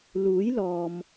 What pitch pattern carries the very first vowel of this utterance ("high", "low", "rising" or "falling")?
rising